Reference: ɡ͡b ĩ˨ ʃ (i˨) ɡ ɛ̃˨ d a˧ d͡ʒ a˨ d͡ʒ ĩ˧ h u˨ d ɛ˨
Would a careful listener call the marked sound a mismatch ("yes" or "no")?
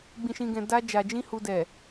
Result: yes